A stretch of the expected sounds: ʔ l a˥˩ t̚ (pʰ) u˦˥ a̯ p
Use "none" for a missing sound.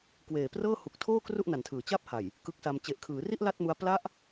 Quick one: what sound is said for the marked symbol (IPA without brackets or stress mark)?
m